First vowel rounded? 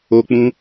yes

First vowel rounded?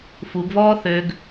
yes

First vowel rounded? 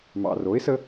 no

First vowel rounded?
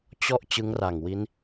yes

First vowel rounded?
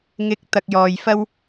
no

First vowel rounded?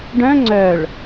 yes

